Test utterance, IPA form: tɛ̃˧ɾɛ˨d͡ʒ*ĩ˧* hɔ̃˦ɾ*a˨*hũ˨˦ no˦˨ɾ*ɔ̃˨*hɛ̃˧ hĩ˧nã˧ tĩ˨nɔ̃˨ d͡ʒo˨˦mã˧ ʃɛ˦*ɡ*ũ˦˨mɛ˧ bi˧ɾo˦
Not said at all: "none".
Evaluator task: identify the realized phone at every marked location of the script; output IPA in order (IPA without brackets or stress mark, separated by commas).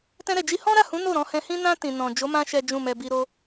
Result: i˧, a˦˨, ɔ̃˧, d͡ʒ